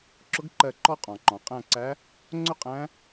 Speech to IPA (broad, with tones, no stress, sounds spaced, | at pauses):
ǁ ʊ˧˥ ɡ ǃ ɜ˦˨ ǃ ɔ˥ qʼ ɔ̃˩ ǃ ɔ̃˩ qʼ æ̃˦˨ ǀ æ˧˥ | ŋ͡ǀ ʊ˥ qʼ æ̃˧˥